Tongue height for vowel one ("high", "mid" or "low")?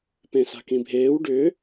mid